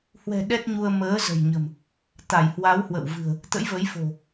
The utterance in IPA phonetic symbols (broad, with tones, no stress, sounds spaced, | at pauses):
h w ɛ̤˨˩ ɗ ɛ˦˥ t̚ ɲ u˧ ə̯ m əː˨˦ z ə̤˨˩ j ɲ ə̤˨˩ m | t̪ a˧˩ j h w a˨˦ w h w ə̰˧˨ w v ɨ̤˨˩ ə̯ | t̪ ə̰˧˥ j v ə˨˦ j f o̤˨˩